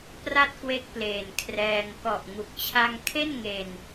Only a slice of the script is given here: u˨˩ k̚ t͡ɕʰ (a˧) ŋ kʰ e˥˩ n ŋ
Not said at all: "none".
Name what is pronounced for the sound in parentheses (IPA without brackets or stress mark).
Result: a˧